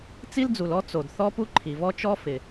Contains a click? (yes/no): yes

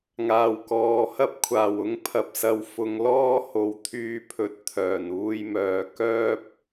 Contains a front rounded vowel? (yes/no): yes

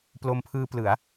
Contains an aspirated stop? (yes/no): yes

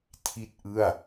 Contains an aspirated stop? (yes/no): yes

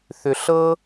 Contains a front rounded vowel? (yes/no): yes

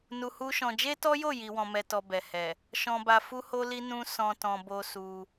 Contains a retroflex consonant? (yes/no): no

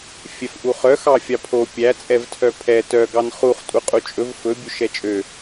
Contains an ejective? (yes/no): yes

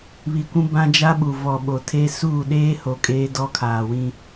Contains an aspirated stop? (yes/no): yes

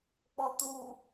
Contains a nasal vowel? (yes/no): no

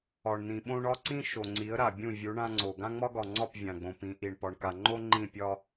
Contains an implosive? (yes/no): yes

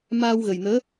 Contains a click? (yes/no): no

